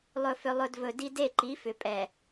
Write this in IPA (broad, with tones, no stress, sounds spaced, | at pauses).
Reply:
lˠ ɵ˨ f ʏ˨ lˠ ɵ˨ d v ɵ˨ d i˦ d e˦˨ ǃ i˨˦ f ʏ˨ pʼ ɛ˨